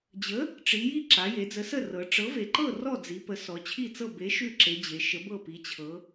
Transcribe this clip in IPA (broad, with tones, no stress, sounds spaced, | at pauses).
d͡ʑ ə˨˥ | ʈ͡ʂ i˩˧ j i˥˨ ǁ a˩˧ j e˩˧ d͡z ə˨˥ s ə˥˨ r ɤ˩˧ ʈ͡ʂ ɤ˨˥ v e˩˧ ǃ ɤ˥˨ r ɔ˥˨ d͡z i˩˧ p ə˩˧ s ɔ˩˧ t͡ɕʰ i˥˨ t͡s ɤ˥˨ b e˨˥ ʃ ʉ˥˨ ǁ e˩˧ d͡ʑ e˩˧ ʃ ə˨˥ b ɤ˥˨ p i˩˧ t͡ɕʰ ɤ˩˧